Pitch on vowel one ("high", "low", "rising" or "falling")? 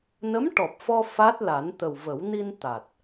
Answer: rising